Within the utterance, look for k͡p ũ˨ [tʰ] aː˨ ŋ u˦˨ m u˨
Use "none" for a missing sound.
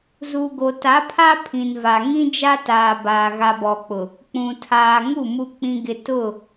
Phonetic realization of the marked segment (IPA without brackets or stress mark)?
tʰ